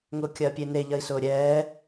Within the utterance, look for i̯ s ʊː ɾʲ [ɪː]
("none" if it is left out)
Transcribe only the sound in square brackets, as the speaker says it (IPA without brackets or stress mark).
ɛː